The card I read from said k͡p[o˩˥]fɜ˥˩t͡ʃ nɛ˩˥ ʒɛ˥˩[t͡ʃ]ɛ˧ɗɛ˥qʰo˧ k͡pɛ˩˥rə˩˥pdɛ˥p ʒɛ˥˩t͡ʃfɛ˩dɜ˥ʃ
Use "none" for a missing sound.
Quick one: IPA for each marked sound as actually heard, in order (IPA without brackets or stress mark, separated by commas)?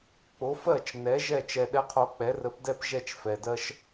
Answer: o˩˥, t͡ʃ